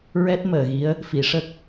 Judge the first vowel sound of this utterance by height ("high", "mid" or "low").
mid